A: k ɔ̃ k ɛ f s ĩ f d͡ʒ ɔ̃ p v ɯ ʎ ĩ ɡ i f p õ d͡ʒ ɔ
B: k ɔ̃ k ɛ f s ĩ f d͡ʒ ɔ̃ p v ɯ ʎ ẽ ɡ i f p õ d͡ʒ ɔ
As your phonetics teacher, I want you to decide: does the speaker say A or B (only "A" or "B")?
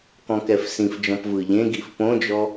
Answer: B